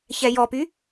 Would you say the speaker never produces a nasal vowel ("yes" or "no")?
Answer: yes